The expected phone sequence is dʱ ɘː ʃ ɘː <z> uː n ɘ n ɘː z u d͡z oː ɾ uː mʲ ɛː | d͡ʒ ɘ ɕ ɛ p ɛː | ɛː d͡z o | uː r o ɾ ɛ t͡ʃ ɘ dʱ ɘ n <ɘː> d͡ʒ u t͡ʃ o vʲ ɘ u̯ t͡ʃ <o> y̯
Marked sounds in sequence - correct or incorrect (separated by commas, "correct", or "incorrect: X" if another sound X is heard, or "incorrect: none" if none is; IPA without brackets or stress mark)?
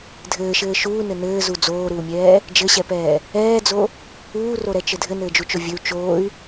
incorrect: ʃ, correct, incorrect: oː